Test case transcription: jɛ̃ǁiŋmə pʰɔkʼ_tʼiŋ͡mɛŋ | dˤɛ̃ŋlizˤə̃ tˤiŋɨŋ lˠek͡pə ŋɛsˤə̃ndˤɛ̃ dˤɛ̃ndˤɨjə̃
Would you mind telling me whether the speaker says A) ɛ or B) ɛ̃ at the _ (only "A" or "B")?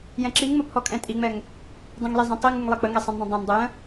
B